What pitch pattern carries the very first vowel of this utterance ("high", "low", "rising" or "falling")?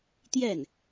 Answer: falling